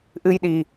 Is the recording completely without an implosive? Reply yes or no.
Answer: no